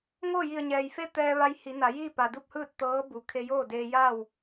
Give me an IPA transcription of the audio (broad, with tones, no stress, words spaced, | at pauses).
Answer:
ŋoː˥˨ji˧˩ə̯ɲɛː˩jfe˥˨ t̪ɛː˧ ʋa˧j hi˩˧ na˩˧jiː˥˨ pa˩du˥˨p̚hɯː˥˨t̚ t̪ɤː˧˥bu˩ kʰe˧joː˥˨deː˧ ja˥˨w